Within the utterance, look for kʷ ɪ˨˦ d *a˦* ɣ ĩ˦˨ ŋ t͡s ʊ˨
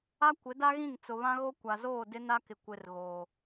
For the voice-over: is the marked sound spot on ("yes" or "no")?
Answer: yes